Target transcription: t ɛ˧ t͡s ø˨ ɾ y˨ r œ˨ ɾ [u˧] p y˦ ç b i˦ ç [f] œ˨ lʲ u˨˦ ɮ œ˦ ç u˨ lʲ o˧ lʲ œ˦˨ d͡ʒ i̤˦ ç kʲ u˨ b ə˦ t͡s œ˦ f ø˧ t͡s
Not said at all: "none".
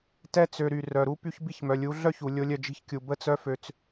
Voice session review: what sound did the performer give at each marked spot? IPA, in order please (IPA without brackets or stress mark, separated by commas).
u˦, m